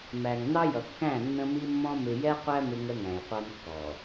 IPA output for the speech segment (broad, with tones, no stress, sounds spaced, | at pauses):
m æ˨ ŋ n ɑ˦ j ʌ˨ kː æ̃˦˨ nː ə̃˦ m i˦ mː ɔ̃˦ m ɪ˨ j ɛ˦ qʷ æ˦ m ɪ˦ ŋ ə˦ ŋ æ̃˨ j qʷ ɑ˦ n kː ɔː˨